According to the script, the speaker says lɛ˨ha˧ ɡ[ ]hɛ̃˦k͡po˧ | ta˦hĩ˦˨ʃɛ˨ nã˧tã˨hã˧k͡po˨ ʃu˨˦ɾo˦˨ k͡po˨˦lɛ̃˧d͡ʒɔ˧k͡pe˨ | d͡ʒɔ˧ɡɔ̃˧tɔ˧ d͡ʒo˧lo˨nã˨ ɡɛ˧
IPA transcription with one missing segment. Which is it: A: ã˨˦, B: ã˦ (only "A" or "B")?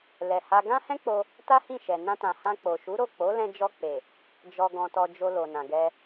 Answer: B